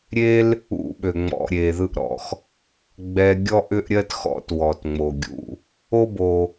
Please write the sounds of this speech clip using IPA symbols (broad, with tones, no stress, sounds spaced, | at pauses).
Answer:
ɾʲ e˥ l | ṵ˦ ɓ ø˩ ŋ͡m ɔ̰˨ ɾʲ e˩ ð ɯ˦ ʔ ɾ ɔ̰˩ x | ɡ͡b ɛ˨ ɡʲ ɔ˥ ʔ ʏ˥ ʔ ɾʲ ɜ˥ t x ɔ̰˦ t w ɔ˩ t ŋ͡m o˩ ɡʲ ṵ˨ | o˦ b o˩